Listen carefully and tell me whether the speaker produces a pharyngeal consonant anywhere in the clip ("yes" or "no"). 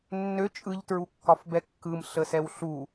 no